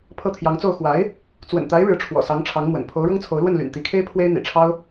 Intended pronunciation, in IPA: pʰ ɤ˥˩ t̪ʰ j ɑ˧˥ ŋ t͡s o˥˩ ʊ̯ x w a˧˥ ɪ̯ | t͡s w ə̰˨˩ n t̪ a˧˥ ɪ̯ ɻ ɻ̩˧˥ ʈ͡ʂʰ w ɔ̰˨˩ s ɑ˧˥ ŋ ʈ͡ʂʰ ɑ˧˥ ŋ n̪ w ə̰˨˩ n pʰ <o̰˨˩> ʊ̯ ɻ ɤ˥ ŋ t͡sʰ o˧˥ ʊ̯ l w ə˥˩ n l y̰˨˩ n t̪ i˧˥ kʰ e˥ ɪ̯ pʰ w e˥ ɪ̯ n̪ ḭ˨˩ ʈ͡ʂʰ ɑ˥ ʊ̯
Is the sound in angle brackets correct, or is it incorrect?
incorrect